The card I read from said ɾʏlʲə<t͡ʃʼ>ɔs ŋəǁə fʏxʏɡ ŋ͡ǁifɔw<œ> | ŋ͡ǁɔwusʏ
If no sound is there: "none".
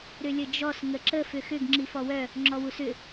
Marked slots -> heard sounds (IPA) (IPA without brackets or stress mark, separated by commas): d͡ʒ, œ